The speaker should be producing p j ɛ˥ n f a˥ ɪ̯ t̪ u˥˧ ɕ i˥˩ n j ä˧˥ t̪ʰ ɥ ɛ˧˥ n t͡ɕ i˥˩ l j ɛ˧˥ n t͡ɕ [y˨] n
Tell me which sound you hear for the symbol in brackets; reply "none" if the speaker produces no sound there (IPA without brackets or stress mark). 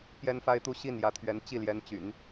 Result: y̰˨˩˦